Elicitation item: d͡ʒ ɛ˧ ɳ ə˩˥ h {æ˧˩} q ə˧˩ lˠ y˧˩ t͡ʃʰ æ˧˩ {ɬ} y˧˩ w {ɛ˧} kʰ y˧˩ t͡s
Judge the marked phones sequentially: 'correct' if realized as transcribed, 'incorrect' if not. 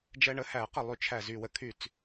incorrect: æ˨˩˦, incorrect: z, incorrect: ə˧

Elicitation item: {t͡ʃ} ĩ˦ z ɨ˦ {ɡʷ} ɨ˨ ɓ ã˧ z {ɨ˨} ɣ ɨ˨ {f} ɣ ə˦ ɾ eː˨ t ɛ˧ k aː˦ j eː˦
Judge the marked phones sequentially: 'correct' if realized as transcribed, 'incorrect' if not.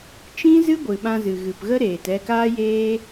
correct, correct, correct, incorrect: p

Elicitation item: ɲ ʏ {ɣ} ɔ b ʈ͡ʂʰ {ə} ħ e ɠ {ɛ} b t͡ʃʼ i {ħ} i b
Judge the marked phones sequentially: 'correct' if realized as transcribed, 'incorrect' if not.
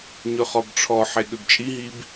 incorrect: χ, incorrect: ɔ, incorrect: ʏ, incorrect: ɦ

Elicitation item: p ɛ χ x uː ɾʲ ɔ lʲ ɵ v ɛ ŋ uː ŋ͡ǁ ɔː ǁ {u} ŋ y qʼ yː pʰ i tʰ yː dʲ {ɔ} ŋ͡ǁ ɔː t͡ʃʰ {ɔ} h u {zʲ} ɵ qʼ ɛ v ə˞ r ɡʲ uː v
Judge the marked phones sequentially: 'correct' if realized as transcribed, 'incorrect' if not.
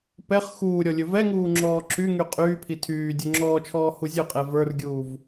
incorrect: y, incorrect: ɵ, incorrect: ɔː, correct

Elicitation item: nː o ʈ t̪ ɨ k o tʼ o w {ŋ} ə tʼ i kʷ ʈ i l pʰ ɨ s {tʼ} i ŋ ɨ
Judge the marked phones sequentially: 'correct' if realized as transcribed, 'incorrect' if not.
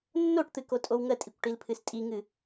correct, correct

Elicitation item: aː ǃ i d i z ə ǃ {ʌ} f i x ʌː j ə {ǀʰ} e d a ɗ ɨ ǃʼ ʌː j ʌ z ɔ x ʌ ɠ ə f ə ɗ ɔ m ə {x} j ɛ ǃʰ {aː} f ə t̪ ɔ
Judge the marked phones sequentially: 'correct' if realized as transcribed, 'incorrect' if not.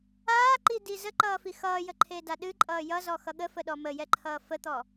incorrect: ʌː, incorrect: ǃʰ, incorrect: none, incorrect: ʌː

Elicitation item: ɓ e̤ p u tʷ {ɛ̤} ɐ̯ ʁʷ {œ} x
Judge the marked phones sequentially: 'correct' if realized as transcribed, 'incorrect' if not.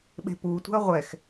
correct, incorrect: ɛ

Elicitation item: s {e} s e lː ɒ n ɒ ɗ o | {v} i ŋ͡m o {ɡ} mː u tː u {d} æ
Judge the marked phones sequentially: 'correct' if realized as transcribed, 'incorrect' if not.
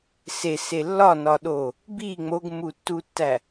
correct, incorrect: b, correct, incorrect: tː

